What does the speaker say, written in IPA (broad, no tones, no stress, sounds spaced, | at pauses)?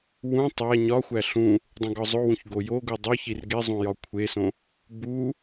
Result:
w ũ tˤ æ ɲ ɒ xʷ æ ɬ ũ | dˤ õ ɡ ɒ zˤ o w ũ ç ɡ o j o ɡ u dˤ o ç i r ɡ e zˤ ũ j ɒ kʷʰ e s õ | b u